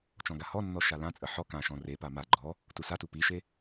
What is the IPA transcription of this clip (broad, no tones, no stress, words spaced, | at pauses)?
t͡ʃɔ̃ɡahɔnːɔ ʃalãt͡sʼə ħɔ kãʃɔ̃ repa ma ɡ͡ǃɔ | tusatu piʃe